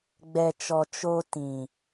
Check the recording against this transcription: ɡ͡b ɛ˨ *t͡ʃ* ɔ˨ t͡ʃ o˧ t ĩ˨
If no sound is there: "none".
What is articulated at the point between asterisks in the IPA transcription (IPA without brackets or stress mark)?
t͡ʃ